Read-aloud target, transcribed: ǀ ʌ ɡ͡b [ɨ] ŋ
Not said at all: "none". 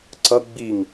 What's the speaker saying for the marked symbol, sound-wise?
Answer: i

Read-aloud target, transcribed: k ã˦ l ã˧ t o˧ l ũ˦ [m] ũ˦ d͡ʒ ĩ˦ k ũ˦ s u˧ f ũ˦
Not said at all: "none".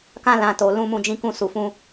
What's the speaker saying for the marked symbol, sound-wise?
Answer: m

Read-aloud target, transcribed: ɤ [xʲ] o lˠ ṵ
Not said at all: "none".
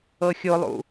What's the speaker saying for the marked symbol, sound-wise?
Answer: xʲ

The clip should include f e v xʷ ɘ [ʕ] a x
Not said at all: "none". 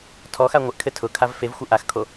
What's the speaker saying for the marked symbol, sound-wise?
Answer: ʔ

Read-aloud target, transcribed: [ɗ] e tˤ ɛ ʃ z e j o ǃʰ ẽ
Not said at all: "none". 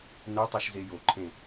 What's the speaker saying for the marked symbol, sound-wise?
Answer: n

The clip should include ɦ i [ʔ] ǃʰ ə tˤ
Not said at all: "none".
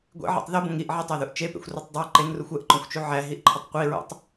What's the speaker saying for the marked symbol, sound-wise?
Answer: ʔ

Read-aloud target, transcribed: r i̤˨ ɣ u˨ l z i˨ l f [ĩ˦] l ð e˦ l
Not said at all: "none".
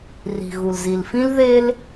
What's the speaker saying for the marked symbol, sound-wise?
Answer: ĩ˦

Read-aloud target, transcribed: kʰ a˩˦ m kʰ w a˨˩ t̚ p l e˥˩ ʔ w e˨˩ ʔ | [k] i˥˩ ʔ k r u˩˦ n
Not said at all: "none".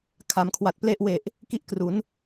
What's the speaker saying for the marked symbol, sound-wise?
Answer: k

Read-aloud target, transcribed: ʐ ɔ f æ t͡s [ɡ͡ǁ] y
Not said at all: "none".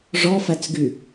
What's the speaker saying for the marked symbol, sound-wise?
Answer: ɡ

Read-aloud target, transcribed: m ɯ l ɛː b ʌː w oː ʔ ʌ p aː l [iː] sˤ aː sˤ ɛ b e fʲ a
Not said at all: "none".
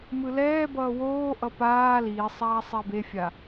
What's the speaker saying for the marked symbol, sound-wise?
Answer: iː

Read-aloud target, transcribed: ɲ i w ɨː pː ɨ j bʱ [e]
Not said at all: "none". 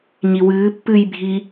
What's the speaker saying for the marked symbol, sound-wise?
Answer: i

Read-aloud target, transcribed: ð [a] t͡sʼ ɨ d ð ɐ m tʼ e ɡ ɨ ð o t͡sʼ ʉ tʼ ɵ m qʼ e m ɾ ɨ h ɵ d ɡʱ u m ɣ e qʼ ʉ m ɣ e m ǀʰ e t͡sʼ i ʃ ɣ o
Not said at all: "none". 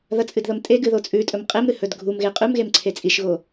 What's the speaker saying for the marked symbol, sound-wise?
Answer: ɐ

